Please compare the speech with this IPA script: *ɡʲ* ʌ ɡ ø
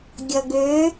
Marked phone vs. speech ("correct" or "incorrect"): correct